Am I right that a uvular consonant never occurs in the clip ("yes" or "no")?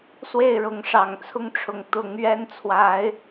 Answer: yes